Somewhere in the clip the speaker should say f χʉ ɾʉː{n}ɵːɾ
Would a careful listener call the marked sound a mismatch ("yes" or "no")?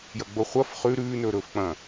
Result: no